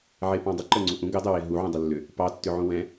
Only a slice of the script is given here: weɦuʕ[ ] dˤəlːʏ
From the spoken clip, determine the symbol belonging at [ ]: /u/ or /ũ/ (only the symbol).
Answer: ũ